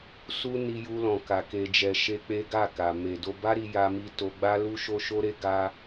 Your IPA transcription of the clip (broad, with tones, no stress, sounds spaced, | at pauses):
s u˧ n i˧ j u˧ l ɔ̃˨ k a˨ k e˨ d͡ʒ ɛ˨ ʃ e˧ k͡p e˦ ɡ a˦˨ k a˨ m e˨ d o˧ b a˦ ɾ i˧ j a˧ m i˧ t o˧ ɡ͡b a˦ l u˦ ʃ o˦ ʃ o˦ ɾ e˦ ɡ a˦